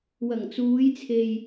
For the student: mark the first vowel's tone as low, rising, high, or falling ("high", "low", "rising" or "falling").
low